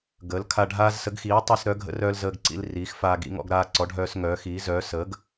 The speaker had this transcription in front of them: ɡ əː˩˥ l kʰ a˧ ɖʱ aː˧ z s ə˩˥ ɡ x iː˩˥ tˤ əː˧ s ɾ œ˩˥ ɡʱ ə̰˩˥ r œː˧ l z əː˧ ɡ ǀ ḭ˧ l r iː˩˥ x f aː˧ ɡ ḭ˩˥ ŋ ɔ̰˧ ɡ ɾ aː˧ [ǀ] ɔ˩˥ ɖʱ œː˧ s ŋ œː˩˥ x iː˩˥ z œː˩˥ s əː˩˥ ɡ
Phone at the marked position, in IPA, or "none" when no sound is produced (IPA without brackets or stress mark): ǀ